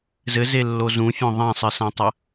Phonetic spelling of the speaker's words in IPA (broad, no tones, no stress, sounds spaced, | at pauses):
z ɘ z e lː o z ũ fʲ õ ðˤ ã sˤ ɨ s ã tˤ ɐ